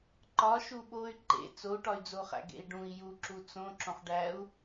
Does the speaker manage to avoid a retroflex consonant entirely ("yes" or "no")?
no